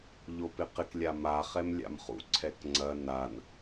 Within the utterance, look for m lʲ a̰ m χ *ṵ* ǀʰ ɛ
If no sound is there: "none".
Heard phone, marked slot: ṵ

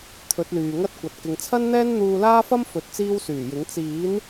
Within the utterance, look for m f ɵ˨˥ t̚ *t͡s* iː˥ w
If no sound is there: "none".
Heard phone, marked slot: t͡s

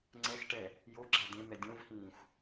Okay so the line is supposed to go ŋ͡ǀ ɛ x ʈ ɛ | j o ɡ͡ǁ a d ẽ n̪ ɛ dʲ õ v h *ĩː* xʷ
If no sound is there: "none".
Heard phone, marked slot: ĩː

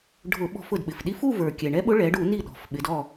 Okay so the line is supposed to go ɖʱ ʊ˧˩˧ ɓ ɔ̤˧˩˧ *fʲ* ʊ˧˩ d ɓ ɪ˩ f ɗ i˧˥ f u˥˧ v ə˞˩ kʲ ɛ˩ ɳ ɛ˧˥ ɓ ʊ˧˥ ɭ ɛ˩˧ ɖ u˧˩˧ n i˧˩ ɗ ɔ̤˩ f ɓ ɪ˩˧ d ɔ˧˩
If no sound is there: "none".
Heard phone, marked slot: f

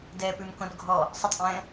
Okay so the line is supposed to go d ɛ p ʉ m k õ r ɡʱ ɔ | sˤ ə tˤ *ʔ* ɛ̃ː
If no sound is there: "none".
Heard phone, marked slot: ʔ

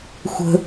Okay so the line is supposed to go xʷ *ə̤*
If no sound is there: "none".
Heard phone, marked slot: ə̤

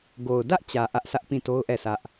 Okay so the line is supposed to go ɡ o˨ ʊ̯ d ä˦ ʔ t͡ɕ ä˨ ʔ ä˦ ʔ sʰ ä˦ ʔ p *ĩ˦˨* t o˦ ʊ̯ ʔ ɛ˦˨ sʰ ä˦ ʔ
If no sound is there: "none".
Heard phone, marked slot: ĩ˦˨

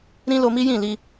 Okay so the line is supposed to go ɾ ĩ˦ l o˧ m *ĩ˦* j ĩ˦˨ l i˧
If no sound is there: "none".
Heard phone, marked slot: i˦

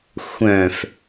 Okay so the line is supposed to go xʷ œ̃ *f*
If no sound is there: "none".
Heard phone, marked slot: f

